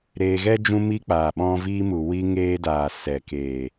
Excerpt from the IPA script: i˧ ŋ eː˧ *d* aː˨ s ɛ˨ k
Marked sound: correct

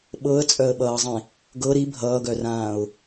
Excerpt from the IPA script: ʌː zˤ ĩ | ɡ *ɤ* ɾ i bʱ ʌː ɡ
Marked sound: correct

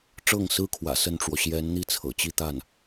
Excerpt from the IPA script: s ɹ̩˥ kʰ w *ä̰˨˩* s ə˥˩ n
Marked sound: correct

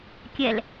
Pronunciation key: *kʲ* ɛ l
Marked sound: correct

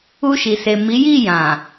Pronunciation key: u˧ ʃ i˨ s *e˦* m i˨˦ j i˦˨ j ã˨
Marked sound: incorrect: e˨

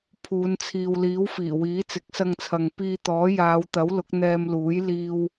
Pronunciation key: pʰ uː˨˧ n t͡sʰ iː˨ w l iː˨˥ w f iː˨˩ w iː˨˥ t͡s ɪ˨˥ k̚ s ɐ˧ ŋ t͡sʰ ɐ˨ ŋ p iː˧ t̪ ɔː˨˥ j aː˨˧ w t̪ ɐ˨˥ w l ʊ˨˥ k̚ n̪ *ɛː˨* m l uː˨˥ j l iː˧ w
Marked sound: incorrect: ɛː˧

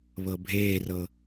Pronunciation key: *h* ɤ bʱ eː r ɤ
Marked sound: incorrect: β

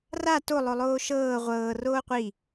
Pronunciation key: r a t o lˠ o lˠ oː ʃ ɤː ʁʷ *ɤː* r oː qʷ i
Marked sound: correct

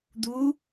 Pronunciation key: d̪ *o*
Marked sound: incorrect: u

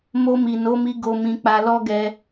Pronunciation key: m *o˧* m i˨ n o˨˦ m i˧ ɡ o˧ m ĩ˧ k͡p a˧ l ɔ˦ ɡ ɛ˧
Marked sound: correct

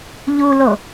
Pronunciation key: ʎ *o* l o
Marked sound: incorrect: u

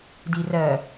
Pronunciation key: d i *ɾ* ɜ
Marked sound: incorrect: r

